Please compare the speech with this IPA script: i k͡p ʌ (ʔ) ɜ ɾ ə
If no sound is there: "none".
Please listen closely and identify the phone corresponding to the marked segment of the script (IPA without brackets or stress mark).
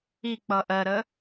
ʔ